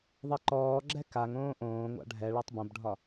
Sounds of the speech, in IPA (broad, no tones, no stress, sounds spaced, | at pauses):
ðˤ e ǃ ɔː ɡ͡ǁ ɛ k a ŋ õː ʔ õː ŋʷ a̰ ɖʱ ɛ ɭ a tˤ b õ b ɖʱ ɒ